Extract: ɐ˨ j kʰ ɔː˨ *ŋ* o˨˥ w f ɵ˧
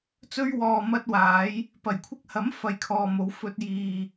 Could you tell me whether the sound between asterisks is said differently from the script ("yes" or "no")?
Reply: yes